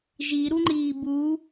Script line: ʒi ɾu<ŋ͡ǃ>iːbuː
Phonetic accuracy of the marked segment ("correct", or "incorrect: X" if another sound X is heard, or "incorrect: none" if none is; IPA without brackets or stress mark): correct